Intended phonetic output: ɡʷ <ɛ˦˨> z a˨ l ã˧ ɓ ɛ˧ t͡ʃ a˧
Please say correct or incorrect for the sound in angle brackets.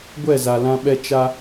correct